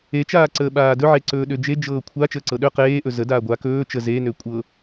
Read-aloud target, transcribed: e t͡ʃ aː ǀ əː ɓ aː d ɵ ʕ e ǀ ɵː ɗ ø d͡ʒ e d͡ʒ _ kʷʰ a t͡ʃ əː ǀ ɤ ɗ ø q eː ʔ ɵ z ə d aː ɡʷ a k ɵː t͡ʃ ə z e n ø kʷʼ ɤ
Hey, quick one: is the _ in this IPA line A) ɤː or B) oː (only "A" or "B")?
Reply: A